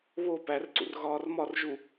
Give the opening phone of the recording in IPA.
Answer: β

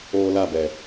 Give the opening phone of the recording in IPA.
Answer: oː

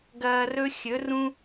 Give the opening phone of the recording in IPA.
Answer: ɡ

